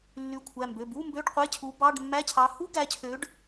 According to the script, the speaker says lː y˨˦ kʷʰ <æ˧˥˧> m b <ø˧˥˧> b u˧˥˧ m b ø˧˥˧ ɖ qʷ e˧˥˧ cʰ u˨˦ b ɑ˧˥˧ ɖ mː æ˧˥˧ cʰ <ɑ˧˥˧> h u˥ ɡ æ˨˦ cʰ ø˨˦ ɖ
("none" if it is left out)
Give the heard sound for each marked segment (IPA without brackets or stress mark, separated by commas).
æ˩˧˩, ø˩˧˩, ɑ˨˦